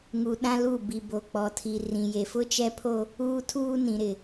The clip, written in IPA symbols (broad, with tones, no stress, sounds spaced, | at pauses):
ŋ u˨ ɗ ã˦ l u˦˨ b i˨ b o˨ k͡p ɔ˨ tʰ i˨ r ĩ˨ j e˨ f ʊ˦ t͡ʃ ɛ˦ pʰ o˦ | uː˦ tʰ uː˦ n ĩ˨ ɾ ɪ˨